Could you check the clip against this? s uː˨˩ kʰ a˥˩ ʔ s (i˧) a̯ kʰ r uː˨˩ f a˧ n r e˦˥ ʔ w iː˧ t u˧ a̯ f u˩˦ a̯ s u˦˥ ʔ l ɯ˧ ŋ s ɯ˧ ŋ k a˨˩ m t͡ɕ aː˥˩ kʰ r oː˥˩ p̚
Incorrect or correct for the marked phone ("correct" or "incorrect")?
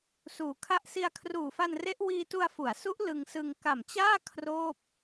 correct